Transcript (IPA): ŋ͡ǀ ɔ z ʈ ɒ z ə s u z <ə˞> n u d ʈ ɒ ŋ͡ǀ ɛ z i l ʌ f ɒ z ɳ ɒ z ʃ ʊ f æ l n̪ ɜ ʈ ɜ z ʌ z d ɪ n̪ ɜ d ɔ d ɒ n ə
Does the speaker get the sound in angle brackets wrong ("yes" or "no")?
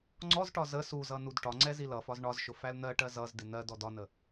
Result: yes